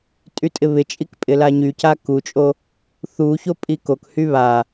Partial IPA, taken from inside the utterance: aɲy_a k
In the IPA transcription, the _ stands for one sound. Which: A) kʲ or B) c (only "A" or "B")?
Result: B